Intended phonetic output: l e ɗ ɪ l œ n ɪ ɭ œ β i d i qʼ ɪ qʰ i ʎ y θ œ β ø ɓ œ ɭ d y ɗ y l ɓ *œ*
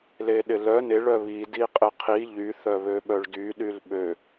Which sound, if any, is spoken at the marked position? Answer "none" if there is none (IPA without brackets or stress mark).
ø